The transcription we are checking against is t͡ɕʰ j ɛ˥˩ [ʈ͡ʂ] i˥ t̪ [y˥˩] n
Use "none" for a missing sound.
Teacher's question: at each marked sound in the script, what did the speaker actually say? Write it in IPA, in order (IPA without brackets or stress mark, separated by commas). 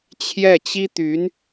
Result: t͡ɕ, y˧˥